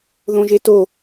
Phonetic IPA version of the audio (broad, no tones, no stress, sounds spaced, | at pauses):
ð õ ʒ e t o